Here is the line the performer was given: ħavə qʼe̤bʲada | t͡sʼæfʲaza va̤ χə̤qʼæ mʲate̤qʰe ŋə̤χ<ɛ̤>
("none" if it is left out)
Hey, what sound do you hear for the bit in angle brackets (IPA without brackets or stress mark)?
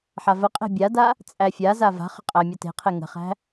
æ̤